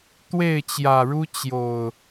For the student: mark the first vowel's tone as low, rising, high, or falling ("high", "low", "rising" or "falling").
falling